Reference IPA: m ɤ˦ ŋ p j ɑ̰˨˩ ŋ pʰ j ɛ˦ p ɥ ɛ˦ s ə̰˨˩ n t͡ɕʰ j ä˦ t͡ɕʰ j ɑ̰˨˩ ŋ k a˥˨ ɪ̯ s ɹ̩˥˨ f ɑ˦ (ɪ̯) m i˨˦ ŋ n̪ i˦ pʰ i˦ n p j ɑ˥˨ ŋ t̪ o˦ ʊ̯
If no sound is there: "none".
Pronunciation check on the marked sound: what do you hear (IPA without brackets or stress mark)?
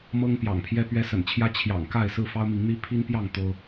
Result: ʊ̯